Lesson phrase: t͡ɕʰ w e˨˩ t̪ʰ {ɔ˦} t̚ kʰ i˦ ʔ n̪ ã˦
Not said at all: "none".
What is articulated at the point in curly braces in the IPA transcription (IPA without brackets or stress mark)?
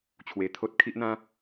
o˦